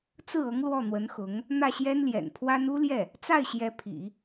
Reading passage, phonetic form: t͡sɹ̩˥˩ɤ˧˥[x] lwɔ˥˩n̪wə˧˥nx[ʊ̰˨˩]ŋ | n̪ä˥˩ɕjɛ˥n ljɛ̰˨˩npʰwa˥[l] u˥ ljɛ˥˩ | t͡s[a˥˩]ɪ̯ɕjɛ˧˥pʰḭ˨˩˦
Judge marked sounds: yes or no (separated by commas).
no, no, no, yes